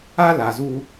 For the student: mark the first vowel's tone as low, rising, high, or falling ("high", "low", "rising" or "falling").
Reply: high